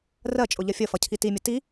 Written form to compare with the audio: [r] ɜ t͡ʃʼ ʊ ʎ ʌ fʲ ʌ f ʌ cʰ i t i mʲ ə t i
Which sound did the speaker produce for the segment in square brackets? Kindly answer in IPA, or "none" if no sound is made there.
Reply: r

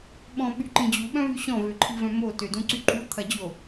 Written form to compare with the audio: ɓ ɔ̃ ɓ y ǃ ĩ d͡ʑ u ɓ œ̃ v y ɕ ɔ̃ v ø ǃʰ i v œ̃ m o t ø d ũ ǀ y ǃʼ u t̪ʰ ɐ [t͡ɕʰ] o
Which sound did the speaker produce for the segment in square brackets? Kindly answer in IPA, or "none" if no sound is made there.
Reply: d͡ʑ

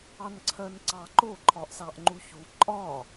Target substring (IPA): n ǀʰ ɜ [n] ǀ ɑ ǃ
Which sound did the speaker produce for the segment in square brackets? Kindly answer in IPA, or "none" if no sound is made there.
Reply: n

